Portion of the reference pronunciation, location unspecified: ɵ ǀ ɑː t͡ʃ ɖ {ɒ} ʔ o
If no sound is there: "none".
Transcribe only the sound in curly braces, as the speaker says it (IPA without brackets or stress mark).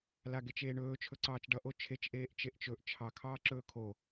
ʌ